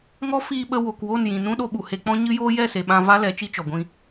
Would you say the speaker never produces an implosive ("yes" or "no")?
no